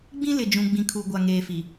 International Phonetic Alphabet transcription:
ɡ͡b ĩ˦ l ɪ˨ d͡ʒ ũ˨ ɡ͡b ĩ˨ kʰ u˨ ɡʷ a˨ ŋ eː˨ f i˨

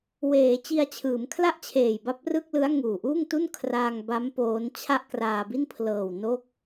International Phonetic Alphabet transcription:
w eː˩˦ t͡ɕ i˧ a̯ t͡ɕʰ ɯː˩˦ m kʰ l a˥˩ ʔ t͡ɕʰ eː˨˩ j b a˦˥ p̚ r ɯ˥˩ k̚ l ɯ˦˥ a̯ ŋ uː˨˩ ʔ uː˥˩ ŋ t u˥˩ n kʰ r aː˧ ŋ b a˦˥ m p oː˦˥ n t͡ɕʰ a˥˩ ʔ k r aː˧ b i˥˩ n pʰ l ɤː˨˩ w n o˥˩ k̚

